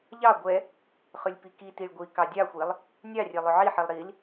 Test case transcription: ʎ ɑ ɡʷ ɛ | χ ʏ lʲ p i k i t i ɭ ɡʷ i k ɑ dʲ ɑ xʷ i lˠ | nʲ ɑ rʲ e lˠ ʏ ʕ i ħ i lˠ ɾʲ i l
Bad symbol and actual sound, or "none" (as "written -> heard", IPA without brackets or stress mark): ɾʲ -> ɾ